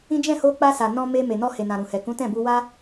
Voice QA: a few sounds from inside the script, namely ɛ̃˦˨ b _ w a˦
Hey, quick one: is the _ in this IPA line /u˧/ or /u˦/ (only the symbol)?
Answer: u˧